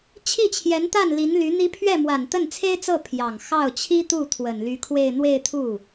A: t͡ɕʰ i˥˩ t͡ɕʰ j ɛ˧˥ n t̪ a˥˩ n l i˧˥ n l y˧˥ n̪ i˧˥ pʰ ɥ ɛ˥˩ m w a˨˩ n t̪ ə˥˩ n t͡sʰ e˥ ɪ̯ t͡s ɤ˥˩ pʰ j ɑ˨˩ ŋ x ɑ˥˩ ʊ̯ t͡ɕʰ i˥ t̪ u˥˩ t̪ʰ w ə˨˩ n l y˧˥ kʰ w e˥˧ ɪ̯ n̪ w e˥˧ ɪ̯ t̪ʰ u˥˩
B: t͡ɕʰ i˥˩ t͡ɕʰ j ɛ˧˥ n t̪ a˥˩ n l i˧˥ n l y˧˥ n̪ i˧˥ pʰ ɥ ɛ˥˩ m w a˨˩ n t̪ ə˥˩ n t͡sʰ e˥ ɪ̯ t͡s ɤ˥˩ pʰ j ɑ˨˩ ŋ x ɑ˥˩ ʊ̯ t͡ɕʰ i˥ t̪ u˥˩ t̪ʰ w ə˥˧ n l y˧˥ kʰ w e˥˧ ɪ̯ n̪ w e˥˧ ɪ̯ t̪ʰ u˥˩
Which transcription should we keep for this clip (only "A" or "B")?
A